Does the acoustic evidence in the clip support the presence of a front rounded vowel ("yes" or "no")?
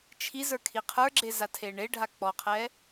no